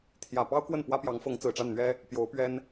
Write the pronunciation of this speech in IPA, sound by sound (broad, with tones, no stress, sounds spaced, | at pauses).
t̪ʰ j ä˨˩ p ɑ˥ ʊ̯ k w ə˥˩ n p w ä˥ p j ɑ˧˥ ŋ f ɤ˧˥ ŋ t͡s ɹ̩˨˩ ʈ͡ʂ a˥˩ n n̪ ɥ ɛ˥ | p j o˧˥ ʊ̯ p ɥ ɛ˥ n